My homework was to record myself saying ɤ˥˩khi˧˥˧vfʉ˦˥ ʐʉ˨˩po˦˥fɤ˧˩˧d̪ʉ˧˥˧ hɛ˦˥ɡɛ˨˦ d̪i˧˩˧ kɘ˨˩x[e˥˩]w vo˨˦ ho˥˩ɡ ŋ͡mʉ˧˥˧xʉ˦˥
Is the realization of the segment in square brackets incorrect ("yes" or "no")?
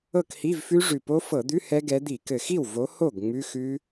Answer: yes